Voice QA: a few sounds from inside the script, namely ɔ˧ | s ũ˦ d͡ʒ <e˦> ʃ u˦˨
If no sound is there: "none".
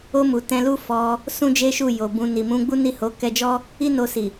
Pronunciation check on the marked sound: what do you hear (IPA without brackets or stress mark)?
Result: e˦